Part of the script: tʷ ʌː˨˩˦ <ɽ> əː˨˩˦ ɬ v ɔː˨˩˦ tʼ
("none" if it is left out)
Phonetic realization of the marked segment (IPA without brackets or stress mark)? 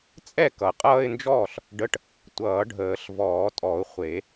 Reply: ɖʱ